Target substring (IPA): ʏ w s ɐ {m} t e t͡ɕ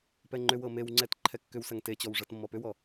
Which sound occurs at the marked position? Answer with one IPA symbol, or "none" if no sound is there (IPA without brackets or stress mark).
ŋ